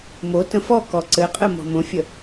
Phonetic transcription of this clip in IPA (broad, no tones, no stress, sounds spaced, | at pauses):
m o t ə̃ f ɔ k ɔ ǀ ɘ qʼ ɘ m ɔ̤ m õ fʲ ə